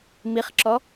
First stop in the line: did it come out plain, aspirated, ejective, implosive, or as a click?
click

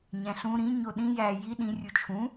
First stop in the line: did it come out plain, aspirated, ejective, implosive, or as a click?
implosive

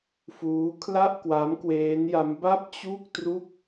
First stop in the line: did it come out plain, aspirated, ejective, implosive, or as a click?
aspirated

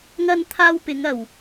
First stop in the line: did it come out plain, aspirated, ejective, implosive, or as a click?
aspirated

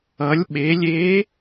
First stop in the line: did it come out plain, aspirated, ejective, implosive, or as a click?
implosive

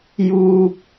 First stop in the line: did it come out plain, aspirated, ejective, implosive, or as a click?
plain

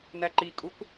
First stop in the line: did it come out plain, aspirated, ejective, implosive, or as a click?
click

